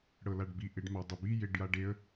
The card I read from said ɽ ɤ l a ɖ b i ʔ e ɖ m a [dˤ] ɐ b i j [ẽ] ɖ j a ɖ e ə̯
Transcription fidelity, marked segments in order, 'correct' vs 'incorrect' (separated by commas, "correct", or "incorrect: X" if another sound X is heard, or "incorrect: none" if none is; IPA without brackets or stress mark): correct, incorrect: e